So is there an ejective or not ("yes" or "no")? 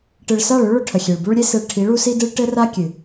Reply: no